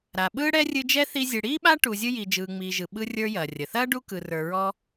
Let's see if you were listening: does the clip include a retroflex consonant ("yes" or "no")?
yes